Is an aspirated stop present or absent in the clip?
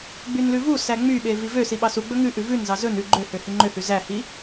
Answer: absent